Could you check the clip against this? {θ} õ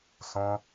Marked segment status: incorrect: s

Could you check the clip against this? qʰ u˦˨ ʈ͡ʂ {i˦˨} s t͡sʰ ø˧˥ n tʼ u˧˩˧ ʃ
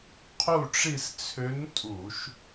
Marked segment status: correct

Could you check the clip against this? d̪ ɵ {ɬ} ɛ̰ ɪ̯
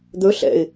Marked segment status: correct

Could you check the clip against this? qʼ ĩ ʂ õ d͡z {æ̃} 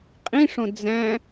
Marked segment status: correct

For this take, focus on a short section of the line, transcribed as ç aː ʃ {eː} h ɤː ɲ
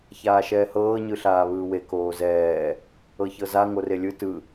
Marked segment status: incorrect: ɛː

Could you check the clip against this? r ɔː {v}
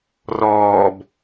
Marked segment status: incorrect: b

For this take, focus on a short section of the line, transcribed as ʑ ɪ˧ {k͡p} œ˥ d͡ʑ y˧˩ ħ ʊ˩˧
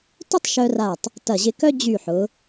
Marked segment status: incorrect: k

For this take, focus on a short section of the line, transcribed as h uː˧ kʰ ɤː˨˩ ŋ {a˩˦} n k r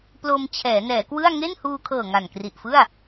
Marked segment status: incorrect: a˨˩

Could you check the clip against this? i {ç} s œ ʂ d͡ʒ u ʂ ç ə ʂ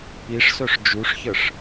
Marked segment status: incorrect: ʂ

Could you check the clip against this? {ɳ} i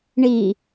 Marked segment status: correct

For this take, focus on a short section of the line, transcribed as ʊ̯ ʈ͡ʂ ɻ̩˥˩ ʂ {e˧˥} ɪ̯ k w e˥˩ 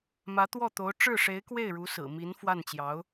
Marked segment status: correct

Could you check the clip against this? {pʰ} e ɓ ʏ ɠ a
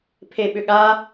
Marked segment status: correct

